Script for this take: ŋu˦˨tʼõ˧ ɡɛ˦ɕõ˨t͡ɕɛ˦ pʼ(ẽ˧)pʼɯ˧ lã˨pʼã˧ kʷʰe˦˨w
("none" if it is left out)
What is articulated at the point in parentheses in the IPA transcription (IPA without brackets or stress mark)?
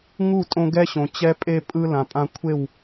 e˧